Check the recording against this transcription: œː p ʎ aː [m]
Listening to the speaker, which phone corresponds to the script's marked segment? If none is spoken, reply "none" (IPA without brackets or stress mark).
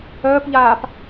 p